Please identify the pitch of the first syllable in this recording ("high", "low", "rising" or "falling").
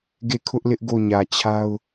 falling